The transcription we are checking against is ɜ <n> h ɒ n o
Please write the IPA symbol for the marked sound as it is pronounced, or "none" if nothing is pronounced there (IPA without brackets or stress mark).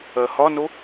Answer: none